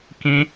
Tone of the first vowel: high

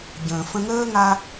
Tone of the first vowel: low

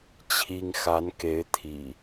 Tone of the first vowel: high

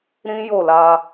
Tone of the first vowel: high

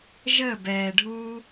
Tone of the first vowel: falling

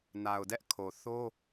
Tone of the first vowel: low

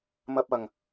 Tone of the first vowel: high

